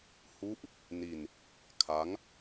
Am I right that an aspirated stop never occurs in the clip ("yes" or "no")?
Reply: no